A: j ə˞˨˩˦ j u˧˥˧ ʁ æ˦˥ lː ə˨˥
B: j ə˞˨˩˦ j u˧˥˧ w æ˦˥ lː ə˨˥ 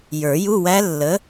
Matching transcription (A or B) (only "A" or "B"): B